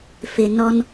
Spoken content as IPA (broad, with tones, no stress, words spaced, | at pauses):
fɪ˨ nɔ˨n